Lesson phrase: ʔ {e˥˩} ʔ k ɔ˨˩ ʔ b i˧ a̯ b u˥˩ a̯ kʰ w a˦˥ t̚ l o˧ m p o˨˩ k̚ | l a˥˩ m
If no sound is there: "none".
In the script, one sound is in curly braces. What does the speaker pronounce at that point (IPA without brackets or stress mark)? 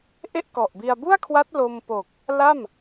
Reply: e˥˩